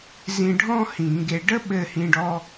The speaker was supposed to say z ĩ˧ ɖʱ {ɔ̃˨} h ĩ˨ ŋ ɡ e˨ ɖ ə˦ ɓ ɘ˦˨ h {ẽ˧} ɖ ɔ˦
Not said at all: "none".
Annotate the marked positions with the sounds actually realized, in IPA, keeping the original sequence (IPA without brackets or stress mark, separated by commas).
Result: ɔ̃˦, ĩ˧